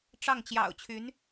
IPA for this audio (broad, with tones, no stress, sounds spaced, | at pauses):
ʈ͡ʂ ɑ˥˩ ŋ t͡ɕ j ɑ̰˨˩ ʊ̯ t͡ɕʰ y˧˥ n